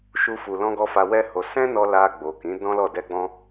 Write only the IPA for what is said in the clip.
ʃu˧ fu˨lɔ̃˧ɡɔ˧ fa˧wɛ˦ho˧ sɛ̃˦nɔ˧ la˧ɡ͡bo˨ kĩ˨˦ dɔ̃˦lɔ˦˨ dɛ˧ɡ͡bɔ̃˧

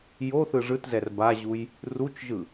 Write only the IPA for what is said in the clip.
jo θɯʐɯtzɛr baʑuj | rut͡ʃʒɯ

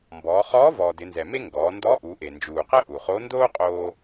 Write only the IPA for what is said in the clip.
mbɔː˩˧χɔː˧˥ vɔː˩dɪ˩˧nzɛ˩me˥ ŋɡɔː˩˧ndɔ˧˥ ʔu˩˧ʔe˩nd͡ʒuː˩qɛ˥ ʔu˩χo˧˥ ndoː˥qʼoː˧

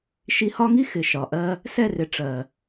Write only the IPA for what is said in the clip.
ʃi˧hɒ˦ŋi˦ xɪ˨ ʃɒ˨ʔɜ˧ | sɛ˦˨rɪ˨ ʈ͡ʂɜ˨

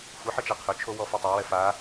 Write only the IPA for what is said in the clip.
xʷɐħə t͡ʃaqʰɵt͡ʃʰo wɔfotˤawɛ fa

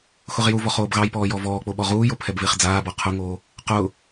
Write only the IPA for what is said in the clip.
xʊʁjuvɔχ oːbɣɑjpɔː jɔvɔːk͡po ɓɔʁuːjo pʰɛbvɪːχd͡zaːbɔ qʰʊŋoː | qʊː

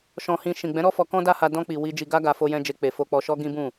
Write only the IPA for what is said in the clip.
ʃɔ̃˨hĩ˨ ʃĩ˨ɡ͡bɛ̃˨˦ɾɔ˦fɔ˧ kɔ̃˦da˦ha˧ dɔ̃˧ k͡pi˨ wi˧ d͡ʒi˧ɡa˦ɡa˧ fo˧jɛ̃˧d͡ʒe˧ k͡pe˨ fo˨k͡pɔ˨ʃɔ˧ ɡĩ˦bũ˦˨

